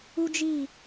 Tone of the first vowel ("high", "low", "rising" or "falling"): high